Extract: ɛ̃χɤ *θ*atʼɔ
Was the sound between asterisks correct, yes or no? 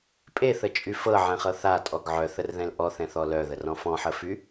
yes